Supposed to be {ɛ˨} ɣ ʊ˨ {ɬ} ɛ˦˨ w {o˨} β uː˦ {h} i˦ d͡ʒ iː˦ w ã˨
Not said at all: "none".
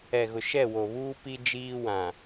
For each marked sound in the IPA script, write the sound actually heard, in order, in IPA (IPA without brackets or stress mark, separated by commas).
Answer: ɛ˨, ʃ, o˨, p